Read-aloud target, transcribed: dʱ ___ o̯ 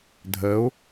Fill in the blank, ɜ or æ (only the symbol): ɜ